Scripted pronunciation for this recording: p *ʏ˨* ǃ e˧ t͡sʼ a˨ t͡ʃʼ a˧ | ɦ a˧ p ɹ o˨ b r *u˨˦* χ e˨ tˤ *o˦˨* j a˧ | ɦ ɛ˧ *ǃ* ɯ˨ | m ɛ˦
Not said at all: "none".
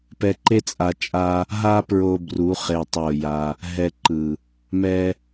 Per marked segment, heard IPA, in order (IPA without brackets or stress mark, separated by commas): ɛ˨, u˨˦, o˦˨, ǃ